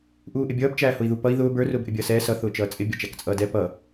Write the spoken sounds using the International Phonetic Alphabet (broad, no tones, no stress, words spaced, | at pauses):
ʔuːʔɪbʲʌːb t͡ʃæːhʊi̯ðupʌi̯ ðʊːb ə˞ rʊːbʔɪbʲʌːsɛː sʌ θʊːt͡ʃʌːt͡sʼɪ bʲʌt͡ʃækt͡sʼʌːdɛ pʌ